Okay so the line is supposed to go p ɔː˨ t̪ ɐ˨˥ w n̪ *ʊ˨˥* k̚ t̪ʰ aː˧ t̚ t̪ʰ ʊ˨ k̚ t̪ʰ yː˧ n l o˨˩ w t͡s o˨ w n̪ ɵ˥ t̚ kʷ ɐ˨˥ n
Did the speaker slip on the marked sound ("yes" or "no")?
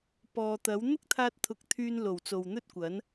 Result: yes